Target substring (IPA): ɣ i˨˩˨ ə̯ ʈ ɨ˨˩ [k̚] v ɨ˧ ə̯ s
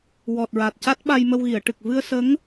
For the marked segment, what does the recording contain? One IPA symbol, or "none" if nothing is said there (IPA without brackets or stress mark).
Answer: k̚